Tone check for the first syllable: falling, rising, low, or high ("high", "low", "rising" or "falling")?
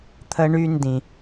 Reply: high